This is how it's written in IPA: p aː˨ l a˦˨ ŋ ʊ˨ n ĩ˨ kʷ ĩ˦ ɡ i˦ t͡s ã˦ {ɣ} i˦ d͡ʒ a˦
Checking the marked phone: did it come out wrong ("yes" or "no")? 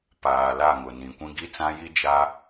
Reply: yes